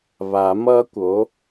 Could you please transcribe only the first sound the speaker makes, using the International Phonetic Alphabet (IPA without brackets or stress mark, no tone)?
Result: β